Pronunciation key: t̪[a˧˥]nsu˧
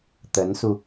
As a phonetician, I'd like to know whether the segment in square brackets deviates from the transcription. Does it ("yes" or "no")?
yes